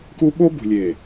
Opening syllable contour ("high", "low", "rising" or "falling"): high